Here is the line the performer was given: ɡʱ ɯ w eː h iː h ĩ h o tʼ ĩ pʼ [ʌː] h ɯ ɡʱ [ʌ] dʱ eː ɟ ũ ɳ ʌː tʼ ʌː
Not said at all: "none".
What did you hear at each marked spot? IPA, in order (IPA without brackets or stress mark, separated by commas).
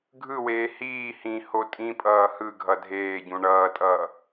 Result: ʌː, ʌ